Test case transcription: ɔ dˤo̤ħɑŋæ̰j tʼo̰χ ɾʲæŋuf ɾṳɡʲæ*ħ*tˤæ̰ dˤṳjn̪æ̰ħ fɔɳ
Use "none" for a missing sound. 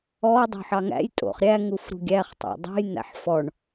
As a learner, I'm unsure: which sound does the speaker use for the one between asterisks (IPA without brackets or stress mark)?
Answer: χ